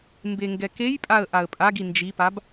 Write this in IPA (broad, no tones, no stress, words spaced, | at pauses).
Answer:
mbeŋɡɛkejpʼaə̯ ʔaə̯pʼaɡi nd͡ʒipab